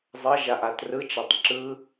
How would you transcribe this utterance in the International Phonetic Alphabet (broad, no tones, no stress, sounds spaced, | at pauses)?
zˤ ʌ ʒ a ʔ a t r ɯ t͡ʃ a tˤ ǁ ɯ